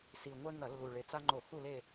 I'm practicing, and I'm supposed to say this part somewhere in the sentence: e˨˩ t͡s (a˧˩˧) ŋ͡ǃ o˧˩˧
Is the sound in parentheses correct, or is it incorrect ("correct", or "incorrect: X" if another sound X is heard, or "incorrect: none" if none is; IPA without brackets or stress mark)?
incorrect: a˦